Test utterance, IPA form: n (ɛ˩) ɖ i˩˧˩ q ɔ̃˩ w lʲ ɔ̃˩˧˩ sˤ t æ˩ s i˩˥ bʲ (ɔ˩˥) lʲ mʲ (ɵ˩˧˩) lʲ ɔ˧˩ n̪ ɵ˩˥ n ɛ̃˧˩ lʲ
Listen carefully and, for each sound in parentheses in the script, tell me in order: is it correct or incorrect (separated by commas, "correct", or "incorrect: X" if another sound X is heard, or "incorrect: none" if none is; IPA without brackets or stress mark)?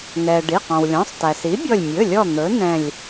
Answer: correct, incorrect: ɔ˧˩, correct